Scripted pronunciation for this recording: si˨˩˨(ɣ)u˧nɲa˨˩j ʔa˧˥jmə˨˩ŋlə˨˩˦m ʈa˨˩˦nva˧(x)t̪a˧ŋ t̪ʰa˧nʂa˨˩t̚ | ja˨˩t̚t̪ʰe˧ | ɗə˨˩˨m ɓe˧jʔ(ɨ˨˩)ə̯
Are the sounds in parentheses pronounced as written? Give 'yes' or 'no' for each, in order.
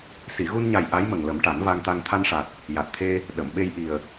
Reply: yes, no, no

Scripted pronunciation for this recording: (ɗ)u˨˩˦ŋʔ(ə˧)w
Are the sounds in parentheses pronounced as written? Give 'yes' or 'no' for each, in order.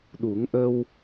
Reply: yes, yes

